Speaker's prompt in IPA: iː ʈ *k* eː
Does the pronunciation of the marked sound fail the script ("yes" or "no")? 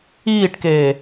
no